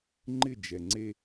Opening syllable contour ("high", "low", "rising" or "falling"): falling